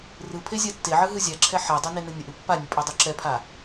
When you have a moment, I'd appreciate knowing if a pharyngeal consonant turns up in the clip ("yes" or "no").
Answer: yes